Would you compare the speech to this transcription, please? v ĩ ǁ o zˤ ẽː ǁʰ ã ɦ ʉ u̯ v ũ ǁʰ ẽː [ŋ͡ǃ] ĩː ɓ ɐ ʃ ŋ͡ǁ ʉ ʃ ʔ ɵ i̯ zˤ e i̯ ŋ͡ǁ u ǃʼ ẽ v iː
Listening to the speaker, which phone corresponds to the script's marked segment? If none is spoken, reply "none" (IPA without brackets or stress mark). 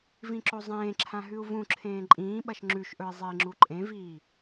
ǃʼ